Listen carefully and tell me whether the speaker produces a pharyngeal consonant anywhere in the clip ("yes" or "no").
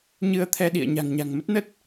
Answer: no